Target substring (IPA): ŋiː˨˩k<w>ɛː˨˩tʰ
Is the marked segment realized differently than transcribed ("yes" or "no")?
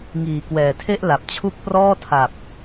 no